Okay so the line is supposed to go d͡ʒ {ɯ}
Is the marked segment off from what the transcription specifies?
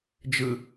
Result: no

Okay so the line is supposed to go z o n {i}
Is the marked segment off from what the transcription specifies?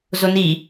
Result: no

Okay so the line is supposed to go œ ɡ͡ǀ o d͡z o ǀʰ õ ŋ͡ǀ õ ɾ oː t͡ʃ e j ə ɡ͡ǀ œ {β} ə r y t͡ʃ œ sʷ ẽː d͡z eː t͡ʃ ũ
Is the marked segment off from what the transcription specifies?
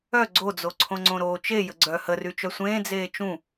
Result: yes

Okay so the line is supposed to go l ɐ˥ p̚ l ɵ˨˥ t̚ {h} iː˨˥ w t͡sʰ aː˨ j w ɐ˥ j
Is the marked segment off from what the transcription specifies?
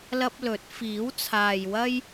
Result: yes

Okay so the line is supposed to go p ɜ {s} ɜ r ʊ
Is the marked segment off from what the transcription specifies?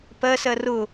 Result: no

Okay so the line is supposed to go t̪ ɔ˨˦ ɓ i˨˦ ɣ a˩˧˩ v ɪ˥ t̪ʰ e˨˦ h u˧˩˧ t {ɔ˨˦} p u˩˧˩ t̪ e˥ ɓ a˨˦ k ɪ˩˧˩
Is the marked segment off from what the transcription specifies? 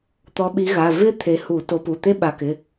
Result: yes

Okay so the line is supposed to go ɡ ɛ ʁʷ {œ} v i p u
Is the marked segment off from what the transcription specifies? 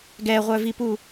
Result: no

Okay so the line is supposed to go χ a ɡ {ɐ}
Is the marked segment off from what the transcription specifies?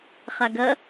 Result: no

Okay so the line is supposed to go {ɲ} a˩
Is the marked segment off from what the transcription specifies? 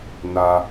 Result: yes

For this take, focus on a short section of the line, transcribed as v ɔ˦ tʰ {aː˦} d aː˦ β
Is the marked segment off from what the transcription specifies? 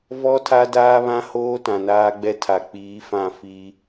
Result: yes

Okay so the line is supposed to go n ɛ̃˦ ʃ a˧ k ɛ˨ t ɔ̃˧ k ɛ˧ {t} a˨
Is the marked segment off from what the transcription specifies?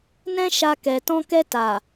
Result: no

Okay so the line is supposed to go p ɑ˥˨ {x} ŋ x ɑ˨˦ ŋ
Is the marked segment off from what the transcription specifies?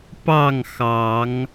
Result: yes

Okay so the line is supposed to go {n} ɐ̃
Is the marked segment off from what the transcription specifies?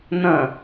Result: no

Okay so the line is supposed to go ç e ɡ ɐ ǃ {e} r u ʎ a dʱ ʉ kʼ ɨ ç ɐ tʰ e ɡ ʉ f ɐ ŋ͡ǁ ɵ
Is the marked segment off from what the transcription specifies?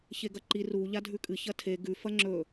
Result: yes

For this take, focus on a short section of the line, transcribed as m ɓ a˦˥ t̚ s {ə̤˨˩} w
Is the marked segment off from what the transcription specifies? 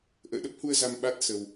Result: yes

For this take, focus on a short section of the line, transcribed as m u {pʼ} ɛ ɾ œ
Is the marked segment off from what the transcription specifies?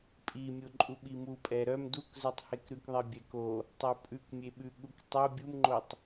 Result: no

